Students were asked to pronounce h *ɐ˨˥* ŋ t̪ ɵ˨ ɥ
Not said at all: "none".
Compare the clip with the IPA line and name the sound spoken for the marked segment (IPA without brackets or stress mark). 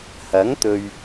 ɐ˨˥